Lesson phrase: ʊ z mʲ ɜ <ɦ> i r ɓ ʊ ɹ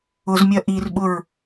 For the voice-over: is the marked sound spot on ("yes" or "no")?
no